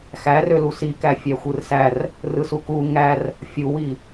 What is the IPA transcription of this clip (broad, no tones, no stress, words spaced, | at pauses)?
xærølu sikæ fʲæxʷɯrsær | rɯsuku ŋær | fʲuwi